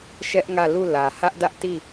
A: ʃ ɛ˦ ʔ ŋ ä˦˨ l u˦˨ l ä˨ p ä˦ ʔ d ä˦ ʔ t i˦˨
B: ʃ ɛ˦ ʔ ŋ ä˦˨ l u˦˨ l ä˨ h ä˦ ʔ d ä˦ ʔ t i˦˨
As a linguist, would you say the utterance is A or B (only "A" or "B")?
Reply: B